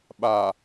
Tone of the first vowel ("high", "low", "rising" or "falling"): low